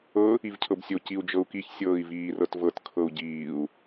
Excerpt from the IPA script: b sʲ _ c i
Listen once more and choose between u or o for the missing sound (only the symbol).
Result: o